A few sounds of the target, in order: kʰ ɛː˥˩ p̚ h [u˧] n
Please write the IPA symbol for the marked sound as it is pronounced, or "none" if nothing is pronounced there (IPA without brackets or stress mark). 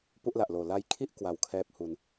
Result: u˧